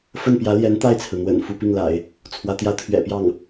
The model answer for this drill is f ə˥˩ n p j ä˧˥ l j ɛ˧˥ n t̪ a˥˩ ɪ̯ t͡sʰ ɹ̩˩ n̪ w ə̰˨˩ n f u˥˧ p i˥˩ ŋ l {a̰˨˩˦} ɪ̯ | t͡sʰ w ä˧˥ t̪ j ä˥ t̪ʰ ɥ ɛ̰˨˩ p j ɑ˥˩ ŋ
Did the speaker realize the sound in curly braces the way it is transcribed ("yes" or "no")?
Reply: yes